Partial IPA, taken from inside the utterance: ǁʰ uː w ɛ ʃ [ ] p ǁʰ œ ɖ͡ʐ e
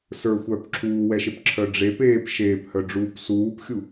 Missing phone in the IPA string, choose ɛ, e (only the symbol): e